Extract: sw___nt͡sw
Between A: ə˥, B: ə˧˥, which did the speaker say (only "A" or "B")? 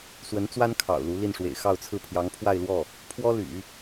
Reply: B